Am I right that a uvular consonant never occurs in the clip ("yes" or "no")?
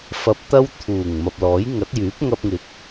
yes